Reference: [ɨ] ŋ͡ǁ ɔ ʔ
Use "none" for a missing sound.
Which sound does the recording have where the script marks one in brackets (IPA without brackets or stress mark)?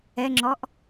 ɛ